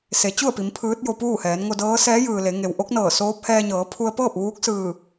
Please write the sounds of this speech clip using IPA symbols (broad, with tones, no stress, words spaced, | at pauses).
se˩˧t͡ɕu˥˨ə̯pi˩˧m pʰɯː˧˥t̚jo˧puː˥˨hɛː˩˧n ŋo˧dɤː˧˥ sɛː˧˥jɯː˩ le˩˧ŋe˩w ʔo˧˥k̚ nɤː˧˩soː˧˥p̚hɛː˧ɲɤː˩˧ pʰu˧ə̯pɤː˥˨p̚ ʋuː˧˥k̚sɯː˧˩